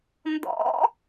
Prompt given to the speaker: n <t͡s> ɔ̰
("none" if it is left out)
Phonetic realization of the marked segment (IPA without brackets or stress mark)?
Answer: d